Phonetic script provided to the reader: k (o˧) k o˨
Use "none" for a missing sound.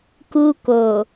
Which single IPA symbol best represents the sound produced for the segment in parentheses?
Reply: u˧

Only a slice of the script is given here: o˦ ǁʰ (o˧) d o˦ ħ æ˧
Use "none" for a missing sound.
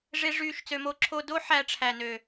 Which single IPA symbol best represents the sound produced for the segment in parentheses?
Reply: o˧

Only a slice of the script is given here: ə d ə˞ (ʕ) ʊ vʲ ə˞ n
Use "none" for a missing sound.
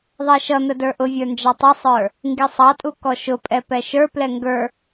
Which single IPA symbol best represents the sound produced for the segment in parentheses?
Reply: ʔ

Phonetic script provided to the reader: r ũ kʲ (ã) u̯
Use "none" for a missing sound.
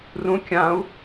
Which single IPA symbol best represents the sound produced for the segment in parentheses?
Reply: ã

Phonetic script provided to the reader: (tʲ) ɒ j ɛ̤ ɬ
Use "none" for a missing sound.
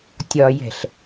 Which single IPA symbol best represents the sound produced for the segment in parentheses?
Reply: tʲ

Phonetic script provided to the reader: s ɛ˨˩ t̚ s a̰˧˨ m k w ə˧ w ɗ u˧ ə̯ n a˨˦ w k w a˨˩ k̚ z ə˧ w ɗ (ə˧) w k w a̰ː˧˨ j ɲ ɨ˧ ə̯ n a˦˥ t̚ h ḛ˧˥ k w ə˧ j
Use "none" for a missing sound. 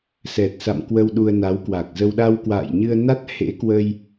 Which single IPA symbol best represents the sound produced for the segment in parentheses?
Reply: a˧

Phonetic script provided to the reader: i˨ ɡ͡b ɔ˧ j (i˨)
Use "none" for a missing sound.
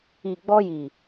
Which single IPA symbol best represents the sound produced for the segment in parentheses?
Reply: i˨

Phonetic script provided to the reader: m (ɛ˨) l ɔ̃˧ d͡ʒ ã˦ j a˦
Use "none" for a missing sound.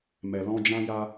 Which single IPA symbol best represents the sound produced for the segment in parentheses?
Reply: ɛ˨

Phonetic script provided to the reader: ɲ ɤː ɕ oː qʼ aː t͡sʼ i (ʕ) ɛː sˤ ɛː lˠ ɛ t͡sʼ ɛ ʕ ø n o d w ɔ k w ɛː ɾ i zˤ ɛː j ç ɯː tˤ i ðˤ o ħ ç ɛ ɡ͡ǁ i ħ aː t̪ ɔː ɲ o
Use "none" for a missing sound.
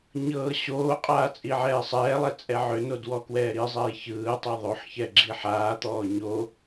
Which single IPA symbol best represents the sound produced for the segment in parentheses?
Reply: ʕ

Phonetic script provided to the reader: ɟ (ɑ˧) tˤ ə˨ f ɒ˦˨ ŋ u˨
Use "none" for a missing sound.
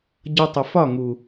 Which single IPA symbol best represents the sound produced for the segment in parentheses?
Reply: ʌ˧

